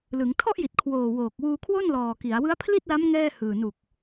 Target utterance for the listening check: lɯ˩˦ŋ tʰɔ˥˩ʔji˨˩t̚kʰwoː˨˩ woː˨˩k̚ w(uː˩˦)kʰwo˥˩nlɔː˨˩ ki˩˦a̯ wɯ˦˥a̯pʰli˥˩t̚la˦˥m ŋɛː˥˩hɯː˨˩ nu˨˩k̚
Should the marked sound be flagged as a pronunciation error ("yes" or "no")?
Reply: yes